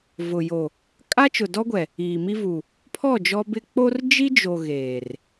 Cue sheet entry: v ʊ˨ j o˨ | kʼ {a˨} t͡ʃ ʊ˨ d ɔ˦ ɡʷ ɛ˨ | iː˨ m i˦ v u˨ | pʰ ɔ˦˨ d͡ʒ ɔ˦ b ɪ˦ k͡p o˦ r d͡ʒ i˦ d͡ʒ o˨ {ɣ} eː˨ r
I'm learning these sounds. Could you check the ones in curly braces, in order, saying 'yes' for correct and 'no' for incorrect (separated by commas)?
no, yes